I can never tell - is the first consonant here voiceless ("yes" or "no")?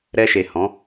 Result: no